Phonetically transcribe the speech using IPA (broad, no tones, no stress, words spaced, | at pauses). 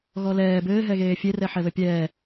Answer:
ɣɔlɛː bɘːɦɛɣeː fʲerɛħɛ βɘpʲɛː